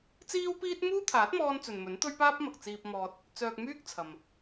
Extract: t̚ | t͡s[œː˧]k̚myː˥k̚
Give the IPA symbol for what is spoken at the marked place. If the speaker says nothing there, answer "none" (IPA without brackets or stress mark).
œː˧